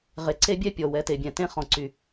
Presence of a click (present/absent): present